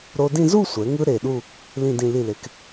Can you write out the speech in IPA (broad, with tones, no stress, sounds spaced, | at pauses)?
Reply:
ɾ o˧ d ĩ˥˧ z u˥˧ sʷ ɛ˩˧ ŋ ɯ˧ ɾ e˧˩ ɗ u˥˧ | l ĩ˥˧ d ĩ˥˧ l i˧˩ l e˩˧ k